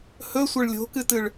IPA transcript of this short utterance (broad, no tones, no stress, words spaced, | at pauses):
hɵsʷɐɭ lʲo̤kɨtɨɭ